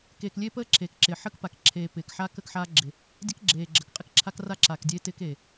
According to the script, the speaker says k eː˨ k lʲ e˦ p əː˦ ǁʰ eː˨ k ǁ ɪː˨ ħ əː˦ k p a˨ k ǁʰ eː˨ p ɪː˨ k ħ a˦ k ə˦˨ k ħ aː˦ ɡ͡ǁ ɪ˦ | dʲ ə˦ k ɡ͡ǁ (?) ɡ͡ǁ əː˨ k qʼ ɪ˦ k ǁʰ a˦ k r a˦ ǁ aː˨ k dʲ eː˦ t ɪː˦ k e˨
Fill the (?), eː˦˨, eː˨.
eː˨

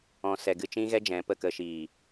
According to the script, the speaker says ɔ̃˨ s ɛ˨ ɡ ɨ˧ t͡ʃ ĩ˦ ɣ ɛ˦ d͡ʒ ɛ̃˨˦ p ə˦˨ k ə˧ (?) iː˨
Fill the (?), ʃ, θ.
ʃ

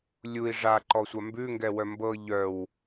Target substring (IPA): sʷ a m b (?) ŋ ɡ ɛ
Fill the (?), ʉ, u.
ʉ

